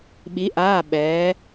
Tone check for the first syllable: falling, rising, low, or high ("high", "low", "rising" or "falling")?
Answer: rising